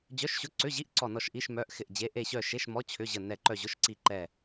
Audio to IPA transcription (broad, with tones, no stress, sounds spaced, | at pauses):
d͡ʑ œ˧˥˧ ʃ ɕ ʊ˧˥˧ ǀ ʏ˧˥˧ ʑ i˧˥˧ ʔ ǀ ɔ˦˨ n ɔ˦˨ ʃ ʔ i˧˥˧ ʃ m œ˧˥˧ ʔ x ɪ˦˨ ʔ d͡ʑ e˧˥˧ ʔ e˦˨ ɕ œ˦˨ ʃ e˧˥˧ ʃ m ɔ˧˥˧ t͡ɕʰ ʏ˧˥˧ ʑ ə˦˨ n ɛ˦˨ ǃ œ˦˨ ʑ ʊ˧˥˧ ʃ ǀ i˦˨ ǃ ɛ˦˨